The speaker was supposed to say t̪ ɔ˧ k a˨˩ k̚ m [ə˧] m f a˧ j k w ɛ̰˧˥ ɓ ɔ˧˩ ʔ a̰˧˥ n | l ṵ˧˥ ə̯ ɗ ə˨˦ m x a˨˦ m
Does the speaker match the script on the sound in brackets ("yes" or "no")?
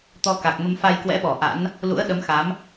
yes